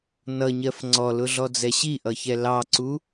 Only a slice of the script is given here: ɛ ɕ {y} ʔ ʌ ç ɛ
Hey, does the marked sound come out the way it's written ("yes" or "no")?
no